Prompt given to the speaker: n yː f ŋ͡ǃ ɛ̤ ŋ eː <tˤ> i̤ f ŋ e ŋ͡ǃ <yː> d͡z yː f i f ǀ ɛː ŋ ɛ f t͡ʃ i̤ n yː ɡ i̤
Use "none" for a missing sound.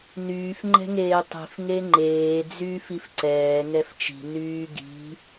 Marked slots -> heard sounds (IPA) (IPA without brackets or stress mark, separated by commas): tˤ, eː